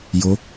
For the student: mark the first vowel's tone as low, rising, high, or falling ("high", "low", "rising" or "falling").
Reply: rising